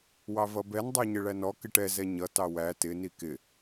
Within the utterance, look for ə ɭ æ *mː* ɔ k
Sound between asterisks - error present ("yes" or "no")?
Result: yes